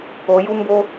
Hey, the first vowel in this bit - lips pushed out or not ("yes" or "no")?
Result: yes